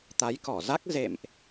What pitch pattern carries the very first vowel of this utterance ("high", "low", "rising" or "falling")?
rising